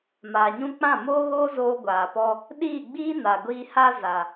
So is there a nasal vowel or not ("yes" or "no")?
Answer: yes